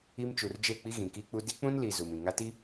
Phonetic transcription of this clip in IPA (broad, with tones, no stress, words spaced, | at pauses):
i˦m t͡ʃu˨rd͡ʒe˦˨k͡pi˦ ɣĩ˨ki˦k͡pu˦ di˦k͡pũ˦nli˨ zu˨mĩ˨ ŋa˦ti˦